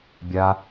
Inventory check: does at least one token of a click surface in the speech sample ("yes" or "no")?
no